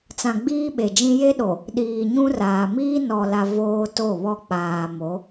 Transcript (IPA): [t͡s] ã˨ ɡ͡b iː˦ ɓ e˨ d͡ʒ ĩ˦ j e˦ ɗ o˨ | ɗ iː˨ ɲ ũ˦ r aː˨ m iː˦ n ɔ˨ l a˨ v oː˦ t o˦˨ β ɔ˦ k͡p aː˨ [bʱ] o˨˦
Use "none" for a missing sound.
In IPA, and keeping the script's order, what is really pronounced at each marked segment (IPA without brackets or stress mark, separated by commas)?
t͡s, m